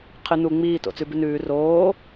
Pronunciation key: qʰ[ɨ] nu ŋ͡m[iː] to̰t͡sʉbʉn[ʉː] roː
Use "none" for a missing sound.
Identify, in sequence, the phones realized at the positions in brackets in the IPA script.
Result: ɨ, iː, ʉː

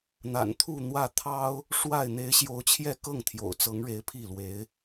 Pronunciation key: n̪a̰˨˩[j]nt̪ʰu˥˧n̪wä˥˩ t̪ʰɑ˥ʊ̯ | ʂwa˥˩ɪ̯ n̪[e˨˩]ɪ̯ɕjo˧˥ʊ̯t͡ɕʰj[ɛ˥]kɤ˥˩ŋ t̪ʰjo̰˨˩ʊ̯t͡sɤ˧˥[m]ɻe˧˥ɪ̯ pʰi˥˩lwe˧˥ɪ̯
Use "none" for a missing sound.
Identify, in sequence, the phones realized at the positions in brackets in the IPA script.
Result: none, e˧˥, ɛ˥˧, ŋ

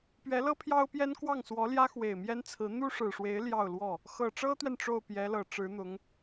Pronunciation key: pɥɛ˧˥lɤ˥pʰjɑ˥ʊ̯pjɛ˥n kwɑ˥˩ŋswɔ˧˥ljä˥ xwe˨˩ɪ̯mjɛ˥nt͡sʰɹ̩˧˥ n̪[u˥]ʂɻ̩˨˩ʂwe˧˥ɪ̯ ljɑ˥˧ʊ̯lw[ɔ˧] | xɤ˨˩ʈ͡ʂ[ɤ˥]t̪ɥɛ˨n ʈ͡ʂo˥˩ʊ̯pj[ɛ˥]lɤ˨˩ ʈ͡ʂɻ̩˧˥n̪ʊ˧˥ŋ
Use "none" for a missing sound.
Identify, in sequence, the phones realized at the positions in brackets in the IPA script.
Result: u˥, ɔ˥˩, ɤ˥, ɛ˧˥

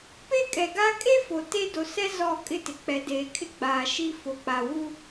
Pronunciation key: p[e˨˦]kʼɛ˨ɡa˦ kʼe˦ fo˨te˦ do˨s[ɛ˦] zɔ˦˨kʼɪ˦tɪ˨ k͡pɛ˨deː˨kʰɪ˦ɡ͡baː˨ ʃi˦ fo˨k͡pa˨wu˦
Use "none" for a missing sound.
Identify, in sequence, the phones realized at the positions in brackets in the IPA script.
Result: e˦, ɛ˦

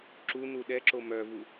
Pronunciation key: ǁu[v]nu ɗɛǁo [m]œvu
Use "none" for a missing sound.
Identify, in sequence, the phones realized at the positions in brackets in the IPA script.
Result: none, m

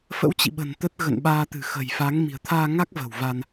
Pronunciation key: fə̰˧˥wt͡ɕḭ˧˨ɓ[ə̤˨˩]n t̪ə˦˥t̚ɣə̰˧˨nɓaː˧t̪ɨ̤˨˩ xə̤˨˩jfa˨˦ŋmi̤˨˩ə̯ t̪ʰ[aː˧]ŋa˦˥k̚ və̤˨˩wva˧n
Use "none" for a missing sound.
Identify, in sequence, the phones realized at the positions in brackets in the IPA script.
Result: ə̤˨˩, aː˧

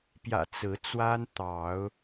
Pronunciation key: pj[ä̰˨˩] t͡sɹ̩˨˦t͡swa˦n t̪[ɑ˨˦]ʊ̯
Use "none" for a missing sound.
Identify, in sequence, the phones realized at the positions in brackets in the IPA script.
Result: ä̰˨˩, ɑ˨˦

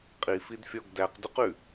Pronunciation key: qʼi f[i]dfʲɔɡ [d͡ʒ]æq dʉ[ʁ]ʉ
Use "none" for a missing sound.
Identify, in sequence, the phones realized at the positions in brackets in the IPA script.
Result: i, d, q

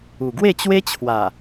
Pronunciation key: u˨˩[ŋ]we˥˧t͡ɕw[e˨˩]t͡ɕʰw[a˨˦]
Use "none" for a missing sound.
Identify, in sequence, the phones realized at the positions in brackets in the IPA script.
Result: ɡ, e˦, a˨˩

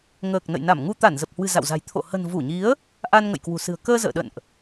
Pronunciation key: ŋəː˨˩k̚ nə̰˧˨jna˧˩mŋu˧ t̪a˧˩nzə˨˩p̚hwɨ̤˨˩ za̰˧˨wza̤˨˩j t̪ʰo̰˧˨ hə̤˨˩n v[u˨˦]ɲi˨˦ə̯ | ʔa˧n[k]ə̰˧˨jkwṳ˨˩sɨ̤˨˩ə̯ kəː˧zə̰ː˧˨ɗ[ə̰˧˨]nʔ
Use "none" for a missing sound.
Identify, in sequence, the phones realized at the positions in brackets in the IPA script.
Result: u˧˩, ŋ, ə̰˧˨

